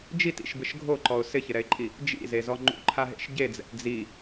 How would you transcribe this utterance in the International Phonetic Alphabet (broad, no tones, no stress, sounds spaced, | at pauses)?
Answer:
d͡ʒ i t ḭ ʃ b ɪ ʃ ɡʱ o ǃ ɔ ʊ̯ s ɪ ç ɪ ɾ ɛ ɪ̯ ǃʼ i | d͡ʒ ḭ z e z ɔ ŋ͡ǃ ṵ ǃʰ a ɦ ḛ ʃ ɟ e d͡z ɛ̰ t d͡z i